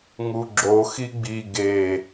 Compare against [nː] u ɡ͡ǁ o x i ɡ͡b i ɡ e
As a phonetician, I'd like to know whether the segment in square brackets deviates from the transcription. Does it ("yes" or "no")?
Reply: yes